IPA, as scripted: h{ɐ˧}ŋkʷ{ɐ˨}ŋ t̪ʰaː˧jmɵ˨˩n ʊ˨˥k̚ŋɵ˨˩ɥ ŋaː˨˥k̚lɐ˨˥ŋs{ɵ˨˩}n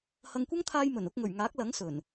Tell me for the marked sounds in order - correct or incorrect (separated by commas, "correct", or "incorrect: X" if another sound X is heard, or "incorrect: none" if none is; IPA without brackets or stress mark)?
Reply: correct, incorrect: ɐ˥, correct